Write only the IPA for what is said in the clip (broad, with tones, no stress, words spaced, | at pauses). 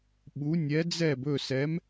ɓu˧˥ nʲɛ˧˥d͡zɛ˥˧b ɵ˥˧sɛ˧˥m